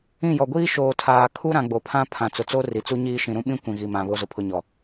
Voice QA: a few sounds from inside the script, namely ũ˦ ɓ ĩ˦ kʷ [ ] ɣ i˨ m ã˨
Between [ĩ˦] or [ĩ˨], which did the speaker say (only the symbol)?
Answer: ĩ˨